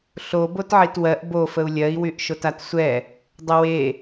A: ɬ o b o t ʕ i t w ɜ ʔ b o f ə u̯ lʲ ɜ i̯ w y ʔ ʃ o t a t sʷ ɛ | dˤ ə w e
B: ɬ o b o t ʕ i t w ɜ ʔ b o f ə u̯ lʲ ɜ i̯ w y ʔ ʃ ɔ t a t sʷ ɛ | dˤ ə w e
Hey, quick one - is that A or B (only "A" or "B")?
A